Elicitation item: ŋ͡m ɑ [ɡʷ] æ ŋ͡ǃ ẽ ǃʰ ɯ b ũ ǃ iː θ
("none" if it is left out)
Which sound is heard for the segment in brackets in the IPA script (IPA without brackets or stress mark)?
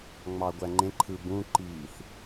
ɡʷ